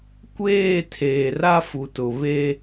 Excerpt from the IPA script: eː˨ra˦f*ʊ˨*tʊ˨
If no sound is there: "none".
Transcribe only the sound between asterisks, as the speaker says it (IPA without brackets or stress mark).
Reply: u˨